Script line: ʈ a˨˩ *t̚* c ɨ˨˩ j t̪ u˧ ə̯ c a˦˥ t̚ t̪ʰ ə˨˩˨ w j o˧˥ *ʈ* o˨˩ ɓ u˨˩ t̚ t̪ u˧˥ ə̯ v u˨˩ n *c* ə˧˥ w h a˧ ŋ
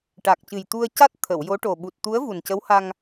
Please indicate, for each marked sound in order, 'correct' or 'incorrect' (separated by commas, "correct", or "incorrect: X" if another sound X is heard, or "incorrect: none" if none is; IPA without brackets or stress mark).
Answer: incorrect: k̚, correct, correct